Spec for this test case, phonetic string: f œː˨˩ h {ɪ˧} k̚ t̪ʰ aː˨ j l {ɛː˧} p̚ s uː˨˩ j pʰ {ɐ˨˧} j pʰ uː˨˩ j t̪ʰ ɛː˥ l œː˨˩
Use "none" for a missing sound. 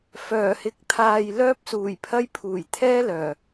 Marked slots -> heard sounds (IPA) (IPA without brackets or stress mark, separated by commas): ɪ˨˥, œː˧, ɐ˧